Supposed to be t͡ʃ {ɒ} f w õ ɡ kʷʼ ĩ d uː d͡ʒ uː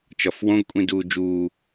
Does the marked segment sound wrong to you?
no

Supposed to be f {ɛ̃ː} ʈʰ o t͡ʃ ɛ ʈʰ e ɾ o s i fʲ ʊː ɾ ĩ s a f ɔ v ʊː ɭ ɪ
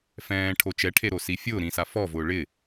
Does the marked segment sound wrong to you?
no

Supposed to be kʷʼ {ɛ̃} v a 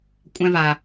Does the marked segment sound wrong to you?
no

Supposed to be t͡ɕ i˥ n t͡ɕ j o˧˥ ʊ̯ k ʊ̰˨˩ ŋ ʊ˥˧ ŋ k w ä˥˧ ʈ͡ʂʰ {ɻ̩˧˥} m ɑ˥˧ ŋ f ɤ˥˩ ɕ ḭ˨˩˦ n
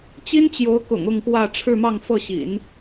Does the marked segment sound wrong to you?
yes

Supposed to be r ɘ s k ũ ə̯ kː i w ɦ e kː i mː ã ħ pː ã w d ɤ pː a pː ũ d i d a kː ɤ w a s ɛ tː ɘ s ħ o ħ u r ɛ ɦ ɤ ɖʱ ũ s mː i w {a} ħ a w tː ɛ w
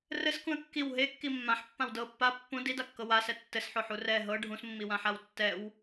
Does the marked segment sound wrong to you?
yes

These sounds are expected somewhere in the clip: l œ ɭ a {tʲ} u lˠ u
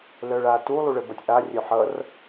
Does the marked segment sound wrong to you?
yes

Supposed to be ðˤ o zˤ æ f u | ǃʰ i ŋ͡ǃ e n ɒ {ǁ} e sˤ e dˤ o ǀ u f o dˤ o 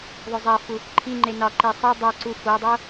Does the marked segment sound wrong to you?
yes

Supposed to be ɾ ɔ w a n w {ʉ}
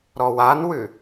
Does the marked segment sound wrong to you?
no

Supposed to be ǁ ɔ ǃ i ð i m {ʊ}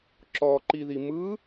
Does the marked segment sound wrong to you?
yes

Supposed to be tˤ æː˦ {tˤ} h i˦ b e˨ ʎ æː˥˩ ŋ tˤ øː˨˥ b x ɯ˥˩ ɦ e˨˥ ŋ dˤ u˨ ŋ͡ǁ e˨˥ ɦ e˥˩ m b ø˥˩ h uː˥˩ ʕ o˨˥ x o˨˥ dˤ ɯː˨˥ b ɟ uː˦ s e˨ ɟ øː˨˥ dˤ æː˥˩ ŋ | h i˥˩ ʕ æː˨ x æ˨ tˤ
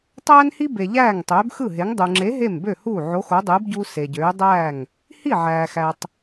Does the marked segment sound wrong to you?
yes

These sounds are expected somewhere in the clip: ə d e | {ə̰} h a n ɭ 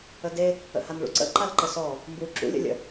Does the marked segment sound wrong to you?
no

